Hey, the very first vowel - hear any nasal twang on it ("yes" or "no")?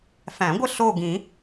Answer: yes